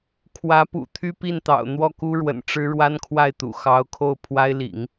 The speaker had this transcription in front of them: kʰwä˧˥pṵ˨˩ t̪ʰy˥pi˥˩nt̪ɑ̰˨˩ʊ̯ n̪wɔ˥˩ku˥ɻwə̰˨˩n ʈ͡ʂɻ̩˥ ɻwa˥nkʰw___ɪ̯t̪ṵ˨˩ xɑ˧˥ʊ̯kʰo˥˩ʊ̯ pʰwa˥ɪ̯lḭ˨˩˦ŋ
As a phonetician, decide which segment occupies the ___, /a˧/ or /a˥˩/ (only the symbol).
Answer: a˥˩